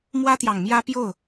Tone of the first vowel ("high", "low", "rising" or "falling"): high